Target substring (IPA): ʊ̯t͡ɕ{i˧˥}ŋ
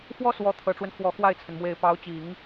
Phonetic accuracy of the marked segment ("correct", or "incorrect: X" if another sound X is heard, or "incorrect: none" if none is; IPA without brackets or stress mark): incorrect: i˨˩˦